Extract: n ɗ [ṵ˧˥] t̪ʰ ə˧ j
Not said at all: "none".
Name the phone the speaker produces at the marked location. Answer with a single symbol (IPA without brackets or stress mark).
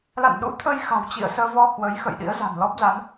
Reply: ṵ˧˥